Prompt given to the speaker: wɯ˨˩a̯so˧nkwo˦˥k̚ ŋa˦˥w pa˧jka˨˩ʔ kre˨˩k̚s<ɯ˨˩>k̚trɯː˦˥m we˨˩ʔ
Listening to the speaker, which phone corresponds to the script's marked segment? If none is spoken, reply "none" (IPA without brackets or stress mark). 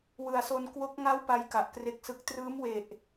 ɯ˨˩